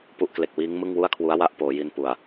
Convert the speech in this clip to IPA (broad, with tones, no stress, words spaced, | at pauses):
pu˦˥ʔkle˨˩k̚wiː˦˥ŋ mɯ˥˩ŋwu˥˩a̯kʰwu˦˥a̯ wa˦˥ʔ poː˩˦ji˧npu˨˩a̯